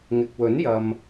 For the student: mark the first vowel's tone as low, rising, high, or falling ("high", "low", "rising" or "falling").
low